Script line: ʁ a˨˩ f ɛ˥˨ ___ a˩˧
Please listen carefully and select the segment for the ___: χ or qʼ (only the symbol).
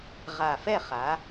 χ